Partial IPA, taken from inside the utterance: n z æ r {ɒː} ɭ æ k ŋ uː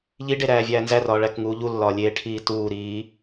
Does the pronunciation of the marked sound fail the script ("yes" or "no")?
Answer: no